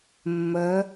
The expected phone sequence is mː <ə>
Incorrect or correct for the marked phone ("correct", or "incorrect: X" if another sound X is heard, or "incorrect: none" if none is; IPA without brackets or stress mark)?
correct